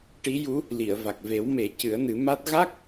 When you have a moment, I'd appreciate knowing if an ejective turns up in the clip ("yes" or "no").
no